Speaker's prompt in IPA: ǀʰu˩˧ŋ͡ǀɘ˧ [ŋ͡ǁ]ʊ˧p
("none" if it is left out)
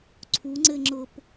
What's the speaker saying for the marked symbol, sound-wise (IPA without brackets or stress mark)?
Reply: ŋ͡ǁ